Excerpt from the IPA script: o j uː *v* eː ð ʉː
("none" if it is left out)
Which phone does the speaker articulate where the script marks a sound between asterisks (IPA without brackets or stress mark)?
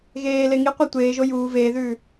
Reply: v